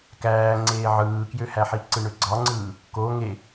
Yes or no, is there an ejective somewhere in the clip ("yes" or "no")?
no